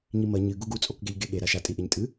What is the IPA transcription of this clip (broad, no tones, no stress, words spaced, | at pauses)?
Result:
ɲimɐ ɲɨ ɡuɡut͡sʼokɡeʎ ɡeɠe ɾaʃatʼi ʔeɲtʼɨ